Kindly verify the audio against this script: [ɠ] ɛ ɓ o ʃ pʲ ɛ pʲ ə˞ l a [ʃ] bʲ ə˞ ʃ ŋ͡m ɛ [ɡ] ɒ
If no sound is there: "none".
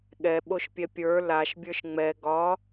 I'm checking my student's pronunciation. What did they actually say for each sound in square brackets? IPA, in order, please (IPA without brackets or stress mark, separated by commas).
ɠ, ʃ, ɡ